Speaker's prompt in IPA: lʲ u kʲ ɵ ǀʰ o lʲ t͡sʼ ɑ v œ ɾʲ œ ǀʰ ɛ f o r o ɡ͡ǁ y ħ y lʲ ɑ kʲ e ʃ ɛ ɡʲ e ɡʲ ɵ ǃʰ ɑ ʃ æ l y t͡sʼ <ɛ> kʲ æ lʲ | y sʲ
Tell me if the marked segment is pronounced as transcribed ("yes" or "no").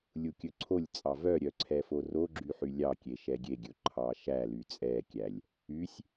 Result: yes